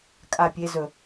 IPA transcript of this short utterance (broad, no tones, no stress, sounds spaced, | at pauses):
kʼ a pʲ e z ɵ